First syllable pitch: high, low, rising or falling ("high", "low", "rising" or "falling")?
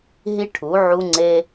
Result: high